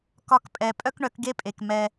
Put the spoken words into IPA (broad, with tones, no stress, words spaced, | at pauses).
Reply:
kɒ˧kpʼɛ˨ pʼœ˦kɳœ˨˦kɡe˦pʼe˨k mɛ˧